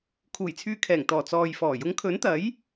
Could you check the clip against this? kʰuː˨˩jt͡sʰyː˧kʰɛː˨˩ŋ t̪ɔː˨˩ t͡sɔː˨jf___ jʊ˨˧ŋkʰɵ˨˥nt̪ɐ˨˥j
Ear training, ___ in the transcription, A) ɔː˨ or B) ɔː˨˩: B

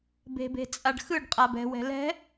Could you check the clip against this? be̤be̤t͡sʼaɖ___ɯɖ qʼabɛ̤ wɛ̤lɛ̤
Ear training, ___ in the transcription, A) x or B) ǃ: A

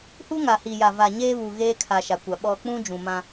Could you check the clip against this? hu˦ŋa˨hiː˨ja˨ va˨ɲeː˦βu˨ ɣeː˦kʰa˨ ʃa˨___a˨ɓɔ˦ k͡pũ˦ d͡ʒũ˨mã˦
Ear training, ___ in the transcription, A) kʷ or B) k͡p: A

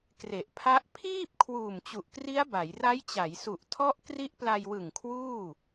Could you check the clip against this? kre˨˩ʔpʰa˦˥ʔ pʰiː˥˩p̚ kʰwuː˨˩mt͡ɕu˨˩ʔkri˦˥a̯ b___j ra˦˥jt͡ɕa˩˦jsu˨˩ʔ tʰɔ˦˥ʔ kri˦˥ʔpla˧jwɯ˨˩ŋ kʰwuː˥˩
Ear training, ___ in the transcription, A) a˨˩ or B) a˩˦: B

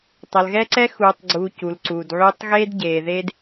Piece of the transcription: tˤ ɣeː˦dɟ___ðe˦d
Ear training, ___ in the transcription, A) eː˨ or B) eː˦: A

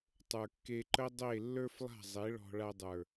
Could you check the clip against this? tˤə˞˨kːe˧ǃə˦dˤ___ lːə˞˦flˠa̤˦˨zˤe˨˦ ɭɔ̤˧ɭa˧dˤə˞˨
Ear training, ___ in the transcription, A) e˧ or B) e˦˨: B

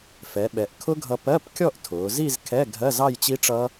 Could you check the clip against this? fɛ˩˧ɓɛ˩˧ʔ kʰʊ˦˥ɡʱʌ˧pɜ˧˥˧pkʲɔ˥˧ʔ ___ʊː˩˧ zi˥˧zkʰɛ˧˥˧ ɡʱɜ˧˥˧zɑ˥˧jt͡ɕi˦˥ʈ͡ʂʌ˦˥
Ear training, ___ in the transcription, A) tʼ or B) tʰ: B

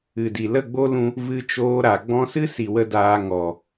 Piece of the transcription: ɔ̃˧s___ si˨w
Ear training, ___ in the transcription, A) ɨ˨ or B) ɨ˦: B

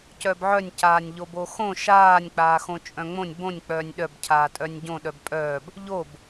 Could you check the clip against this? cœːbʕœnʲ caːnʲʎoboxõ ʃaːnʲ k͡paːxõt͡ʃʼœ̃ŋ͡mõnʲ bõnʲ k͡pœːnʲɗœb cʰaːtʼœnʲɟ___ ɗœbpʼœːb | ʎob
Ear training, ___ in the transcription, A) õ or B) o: A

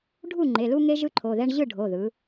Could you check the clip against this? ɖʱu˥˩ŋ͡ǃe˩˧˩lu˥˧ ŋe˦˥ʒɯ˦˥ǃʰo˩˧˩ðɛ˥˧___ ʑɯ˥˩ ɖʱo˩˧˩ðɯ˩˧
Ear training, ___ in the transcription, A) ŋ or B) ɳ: B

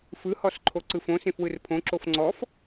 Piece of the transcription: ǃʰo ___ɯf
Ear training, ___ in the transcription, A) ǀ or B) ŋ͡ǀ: A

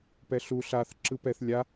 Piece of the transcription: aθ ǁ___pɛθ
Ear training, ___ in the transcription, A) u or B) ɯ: B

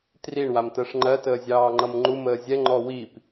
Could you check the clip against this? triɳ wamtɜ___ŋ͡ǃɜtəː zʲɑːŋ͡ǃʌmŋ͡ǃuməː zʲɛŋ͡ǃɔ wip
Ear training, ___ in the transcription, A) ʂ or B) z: A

